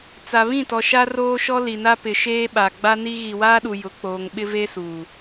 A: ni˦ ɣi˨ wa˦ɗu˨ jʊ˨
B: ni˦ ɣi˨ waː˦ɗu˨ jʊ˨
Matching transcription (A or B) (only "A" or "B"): B